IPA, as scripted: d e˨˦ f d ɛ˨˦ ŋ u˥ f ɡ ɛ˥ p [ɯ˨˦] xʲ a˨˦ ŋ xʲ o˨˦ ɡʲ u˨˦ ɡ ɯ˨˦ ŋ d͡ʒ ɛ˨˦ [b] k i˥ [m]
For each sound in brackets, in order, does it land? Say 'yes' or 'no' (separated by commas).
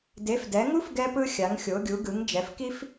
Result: no, no, no